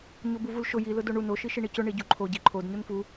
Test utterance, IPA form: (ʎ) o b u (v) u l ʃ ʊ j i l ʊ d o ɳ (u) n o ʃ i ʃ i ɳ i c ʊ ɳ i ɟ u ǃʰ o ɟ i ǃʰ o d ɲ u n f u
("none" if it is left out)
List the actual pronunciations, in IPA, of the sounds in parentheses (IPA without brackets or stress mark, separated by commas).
ɲ, v, u